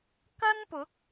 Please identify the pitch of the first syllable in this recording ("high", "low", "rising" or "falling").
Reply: high